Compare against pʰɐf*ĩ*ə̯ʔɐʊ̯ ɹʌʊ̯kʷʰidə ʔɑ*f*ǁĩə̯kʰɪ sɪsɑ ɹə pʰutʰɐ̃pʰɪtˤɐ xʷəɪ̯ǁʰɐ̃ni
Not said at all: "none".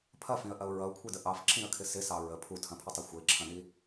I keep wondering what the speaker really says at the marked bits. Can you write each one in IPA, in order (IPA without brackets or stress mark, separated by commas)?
ĩ, f